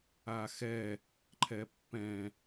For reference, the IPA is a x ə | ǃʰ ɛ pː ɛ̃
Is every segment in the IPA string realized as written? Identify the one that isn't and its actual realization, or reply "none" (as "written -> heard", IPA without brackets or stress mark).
ə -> ɛ